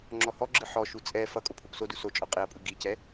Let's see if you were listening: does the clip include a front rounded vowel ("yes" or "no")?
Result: no